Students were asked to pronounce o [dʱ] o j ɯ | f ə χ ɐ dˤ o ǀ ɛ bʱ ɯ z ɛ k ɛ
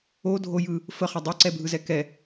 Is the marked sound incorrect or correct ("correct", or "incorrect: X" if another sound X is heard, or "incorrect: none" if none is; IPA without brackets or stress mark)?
correct